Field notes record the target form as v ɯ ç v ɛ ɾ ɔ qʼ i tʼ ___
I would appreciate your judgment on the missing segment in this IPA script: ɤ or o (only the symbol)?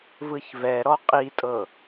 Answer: ɤ